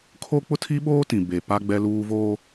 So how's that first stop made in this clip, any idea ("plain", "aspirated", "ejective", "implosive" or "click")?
aspirated